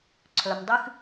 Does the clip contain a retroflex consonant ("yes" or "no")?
no